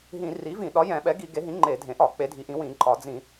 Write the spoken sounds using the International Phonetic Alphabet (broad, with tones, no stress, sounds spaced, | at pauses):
ɦ ĩ˧˩˧ r i˩˥ v ĩ˧˩˧ ɗ ɒ˩˥ j ɛ̃˧˩˧ ɓ ɛ˩˥ ɡ i˧˩˧ ɡ e˩˥ ɦ ĩ˩˥ ŋ͡ǃ e˧˩˧ dʱ ẽ˩˥ ʔ ɒ˧˩˧ k͡p e˩˥ dʱ i˩˥ ʔ ĩ˩˥ w ĩ˧˩˧ ǃʼ ɒ˧˩˧ d͡z ĩ˧˩˧